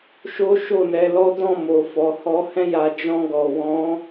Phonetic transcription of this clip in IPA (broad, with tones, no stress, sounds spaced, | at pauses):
ʃ o˦ ʃ o˦˨ n ɛ˧ l ɔ˦ d ɔ̃˦˨ m o˨ f ɔ˨ h ɔ˧ h ɛ̃˦ j a˧ d͡ʒ ɔ̃˧ ɡ ɔ˨ w ɔ̃˨˦